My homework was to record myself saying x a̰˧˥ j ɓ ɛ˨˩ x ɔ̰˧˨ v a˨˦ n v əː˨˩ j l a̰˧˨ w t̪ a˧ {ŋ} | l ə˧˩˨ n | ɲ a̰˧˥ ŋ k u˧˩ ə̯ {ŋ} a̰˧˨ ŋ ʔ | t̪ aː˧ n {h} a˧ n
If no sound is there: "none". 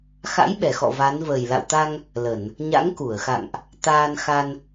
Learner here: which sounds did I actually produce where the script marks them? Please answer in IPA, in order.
ŋ, x, x

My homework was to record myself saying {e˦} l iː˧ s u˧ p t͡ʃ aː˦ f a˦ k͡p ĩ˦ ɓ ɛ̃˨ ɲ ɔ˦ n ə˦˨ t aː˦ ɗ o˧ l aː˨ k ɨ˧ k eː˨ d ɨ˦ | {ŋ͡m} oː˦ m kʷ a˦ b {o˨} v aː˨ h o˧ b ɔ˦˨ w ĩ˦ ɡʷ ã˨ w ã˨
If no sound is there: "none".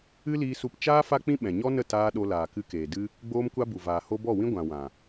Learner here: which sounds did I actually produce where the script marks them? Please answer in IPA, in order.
ɨ˦, ɡ͡b, u˨

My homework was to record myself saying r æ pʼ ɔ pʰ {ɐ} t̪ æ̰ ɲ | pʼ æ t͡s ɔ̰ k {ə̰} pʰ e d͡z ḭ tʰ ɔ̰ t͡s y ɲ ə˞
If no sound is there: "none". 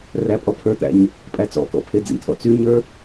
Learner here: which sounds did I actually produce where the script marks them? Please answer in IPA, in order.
ə˞, ɔ̰

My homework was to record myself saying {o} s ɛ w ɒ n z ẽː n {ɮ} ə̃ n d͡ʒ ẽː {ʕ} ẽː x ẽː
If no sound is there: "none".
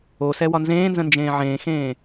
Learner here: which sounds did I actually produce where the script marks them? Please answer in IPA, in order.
o, z, ʕ

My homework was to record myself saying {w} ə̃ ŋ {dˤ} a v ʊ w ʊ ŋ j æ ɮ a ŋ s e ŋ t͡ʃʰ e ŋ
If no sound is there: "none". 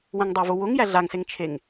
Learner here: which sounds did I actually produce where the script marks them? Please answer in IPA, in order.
w, dˤ

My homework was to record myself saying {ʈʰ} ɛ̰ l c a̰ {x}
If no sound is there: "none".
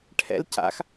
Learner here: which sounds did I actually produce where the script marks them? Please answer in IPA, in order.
ʈʰ, x

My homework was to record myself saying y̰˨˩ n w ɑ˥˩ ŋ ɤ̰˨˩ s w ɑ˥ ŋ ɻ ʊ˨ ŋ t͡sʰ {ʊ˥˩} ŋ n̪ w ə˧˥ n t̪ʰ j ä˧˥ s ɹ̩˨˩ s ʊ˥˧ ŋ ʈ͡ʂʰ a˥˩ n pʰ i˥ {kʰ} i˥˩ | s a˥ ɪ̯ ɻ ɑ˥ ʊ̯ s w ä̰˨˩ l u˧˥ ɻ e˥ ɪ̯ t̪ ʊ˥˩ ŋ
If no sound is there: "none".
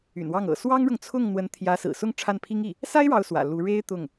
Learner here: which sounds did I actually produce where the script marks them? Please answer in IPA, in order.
ʊ˥˩, ŋ

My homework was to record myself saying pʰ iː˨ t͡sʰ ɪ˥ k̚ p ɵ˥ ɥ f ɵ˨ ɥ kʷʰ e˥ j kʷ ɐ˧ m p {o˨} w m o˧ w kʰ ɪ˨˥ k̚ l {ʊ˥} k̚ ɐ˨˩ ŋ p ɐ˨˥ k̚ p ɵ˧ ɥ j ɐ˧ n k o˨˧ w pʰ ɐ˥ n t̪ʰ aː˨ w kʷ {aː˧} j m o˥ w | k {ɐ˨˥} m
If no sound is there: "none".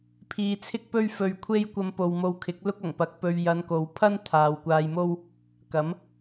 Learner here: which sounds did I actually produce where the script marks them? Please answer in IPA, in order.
o˨, ʊ˥, aː˧, ɐ˨˥

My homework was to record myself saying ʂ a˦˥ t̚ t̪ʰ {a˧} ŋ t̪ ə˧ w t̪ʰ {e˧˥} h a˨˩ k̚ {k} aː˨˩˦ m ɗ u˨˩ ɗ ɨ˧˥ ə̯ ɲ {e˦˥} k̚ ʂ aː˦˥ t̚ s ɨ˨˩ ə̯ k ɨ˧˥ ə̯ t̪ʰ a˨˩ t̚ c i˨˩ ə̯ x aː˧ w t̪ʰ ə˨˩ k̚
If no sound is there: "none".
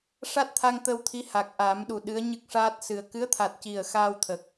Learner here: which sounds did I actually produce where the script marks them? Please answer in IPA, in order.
a˧, i˧˥, ʔ, ɨ˦˥

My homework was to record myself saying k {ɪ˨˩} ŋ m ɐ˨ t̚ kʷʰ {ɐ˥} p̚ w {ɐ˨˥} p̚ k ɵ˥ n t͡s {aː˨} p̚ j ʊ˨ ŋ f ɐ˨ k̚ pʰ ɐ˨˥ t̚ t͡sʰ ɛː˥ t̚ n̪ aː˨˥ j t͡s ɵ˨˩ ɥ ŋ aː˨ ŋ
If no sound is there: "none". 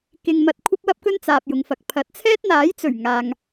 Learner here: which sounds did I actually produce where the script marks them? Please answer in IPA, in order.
ɪ˨, ɐ˥, ɐ˥, aː˨

